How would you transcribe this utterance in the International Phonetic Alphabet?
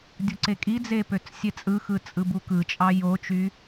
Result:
dʲ u ǀ e kʼ i d͡z e p ø t͡s sʲ e t͡sʼ ɯ x ɯ t͡sʼ ɯ b u k ɯ t͡ʃʼ ɑ j o t͡ʃ y

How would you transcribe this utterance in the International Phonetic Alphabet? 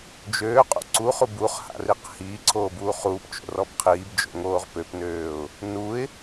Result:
d͡ʒ øː qʼ ṵ ǀ u χ u b u χ h a̰ r i q h iː ǀʰ oː b uː χ uː p t͡ʃ o̰ r ɔ b qʰ iː b d͡ʒ o̰ ŋ oː ʁ p ø p n øː ʊ̯ | n u ɪ̯

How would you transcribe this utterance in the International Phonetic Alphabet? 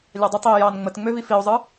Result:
lʲ ɑ dˤ ə tˤ i e̯ j ɑ n ŋ͡m ə t ŋ͡m ø v i f i o̯ zˤ ɯ

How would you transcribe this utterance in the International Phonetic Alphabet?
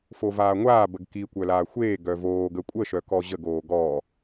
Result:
f o v aː ŋʷ aː b ə ɡ k i kʷ œ l aː xʷ eː ɡ œ v oː ɡ ə kʷʼ ə ʃ œ k ɔ ʑ ə ɡ oː ɡ ɔ

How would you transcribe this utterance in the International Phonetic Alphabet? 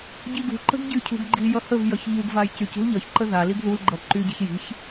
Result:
ɟ i ɡ ṳ ǃ ə̤ ɡ ɟ y cʰ ṳ ɡ ɡ͡ǃ i j ʌ h ə v j ʌ ç ʎ u ɡ v a j c y c ṳ l ʎ ʌ ç ǃ ə ð a l i ɡ ð u l ɡ͡ǃ ʌ ǃ y ɟ i̤ ç j i̤ ç

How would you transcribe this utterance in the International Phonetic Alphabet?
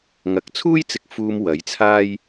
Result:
ŋ ɐ˨˥ k̚ t͡sʰ uː˥ j t͡s ɪ˨ k̚ f uː˨ m w ɐ˨˥ j t͡sʰ aː˥ j

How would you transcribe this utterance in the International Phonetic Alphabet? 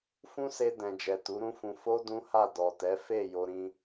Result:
f ũ˦ s e˧ d ɛ̃˨ d͡ʒ ɛ˨ t u˨˦ ɾ ũ˦ f ũ˧ f o˦ d ũ˦ h a˦˨ d ɔ˨ t ɛ˨˦ f e˦˨ j o˧ ɾ ĩ˧

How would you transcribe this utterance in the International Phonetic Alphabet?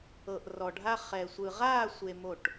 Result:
ɤ˨ ʔ r ɔ˨ ɖʱ a˧ χ ɛ˨ sʷ ɯ˨ ʁ aː˦˨ sʷ e˧ m o˦˨ ʈ

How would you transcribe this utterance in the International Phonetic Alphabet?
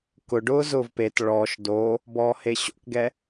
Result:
k ʊ ɖ ʊː z ʊː v p e t ɭ ɔ ʃ d o | b ɔː h e ɕ o̰ k ɡ ɛ

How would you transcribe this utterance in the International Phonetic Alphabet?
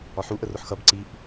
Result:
ɒ ħ u ʔ ə r ʊ ħ x ʌ b ǀ i ʔ

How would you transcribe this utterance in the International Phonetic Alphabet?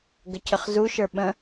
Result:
ɡ ə cʰ ə χ z u ʃ ə˞ ɓ ə̃

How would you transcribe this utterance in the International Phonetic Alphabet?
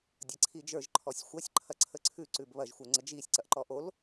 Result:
dʲ ɐ ǀʰ i d͡ʒ ə˞ ʒ ǃʰ ɔ sʲ xʷ ɐ sʲ ǃʰ ɐ ǀʰ ə ǀʰ ʉ ǀ ʉ b β ɐ ʒ xʷ ə˞ ŋ͡ǀ ə d͡ʒ i sʲ ǀ ɐ ʔ ǃ ɔ ʔ o l

